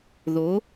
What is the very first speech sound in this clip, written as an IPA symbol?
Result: ð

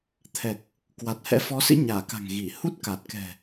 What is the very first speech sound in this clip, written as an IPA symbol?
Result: t̪ʰ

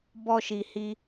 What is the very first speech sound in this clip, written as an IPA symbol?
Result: b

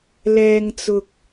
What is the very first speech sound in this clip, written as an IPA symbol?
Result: l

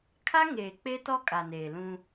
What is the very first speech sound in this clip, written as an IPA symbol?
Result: kʰ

